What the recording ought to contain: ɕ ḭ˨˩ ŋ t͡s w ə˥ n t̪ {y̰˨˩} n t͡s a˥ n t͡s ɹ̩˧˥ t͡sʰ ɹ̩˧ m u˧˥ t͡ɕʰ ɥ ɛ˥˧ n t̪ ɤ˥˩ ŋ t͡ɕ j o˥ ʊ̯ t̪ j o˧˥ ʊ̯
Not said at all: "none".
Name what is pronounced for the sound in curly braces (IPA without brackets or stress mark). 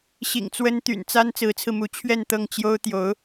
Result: y̰˨˩